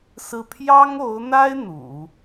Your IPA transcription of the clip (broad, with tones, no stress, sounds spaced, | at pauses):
s ɹ̩˥˩ pʰ j ɑ˥ ŋ o˧˥ ʊ̯ n̪ a˥ ɪ̯ n̪ ṵ˨˩˦